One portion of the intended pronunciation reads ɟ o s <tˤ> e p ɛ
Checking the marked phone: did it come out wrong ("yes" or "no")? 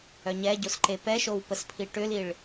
yes